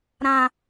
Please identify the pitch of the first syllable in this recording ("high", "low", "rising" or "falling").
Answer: high